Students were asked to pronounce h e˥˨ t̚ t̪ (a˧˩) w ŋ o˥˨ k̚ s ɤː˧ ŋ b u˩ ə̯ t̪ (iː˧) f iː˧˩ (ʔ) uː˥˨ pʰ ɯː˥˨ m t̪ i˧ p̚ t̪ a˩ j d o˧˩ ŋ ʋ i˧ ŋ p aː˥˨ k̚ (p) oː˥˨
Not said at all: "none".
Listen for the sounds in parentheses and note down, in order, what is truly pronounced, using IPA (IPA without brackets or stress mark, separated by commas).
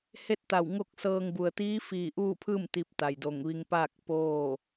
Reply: a˧˩, iː˧˥, ʔ, p